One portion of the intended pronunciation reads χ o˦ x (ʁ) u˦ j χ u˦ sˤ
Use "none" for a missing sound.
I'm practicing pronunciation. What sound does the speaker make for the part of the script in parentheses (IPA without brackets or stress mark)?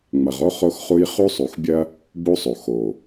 χ